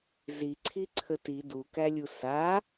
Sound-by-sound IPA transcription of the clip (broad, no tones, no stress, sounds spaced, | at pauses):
z i ǀʰ i ǀʰ ə t i d u k æ lʲ u s a